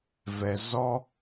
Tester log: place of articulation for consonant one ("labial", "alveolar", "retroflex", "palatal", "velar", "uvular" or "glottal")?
labial